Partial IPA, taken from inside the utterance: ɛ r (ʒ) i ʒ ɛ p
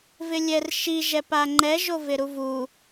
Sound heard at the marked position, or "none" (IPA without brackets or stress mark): ʃ